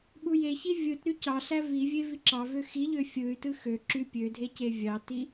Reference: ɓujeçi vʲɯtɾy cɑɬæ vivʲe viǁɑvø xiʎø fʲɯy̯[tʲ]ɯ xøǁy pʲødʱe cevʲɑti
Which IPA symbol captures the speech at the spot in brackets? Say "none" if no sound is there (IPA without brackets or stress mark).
t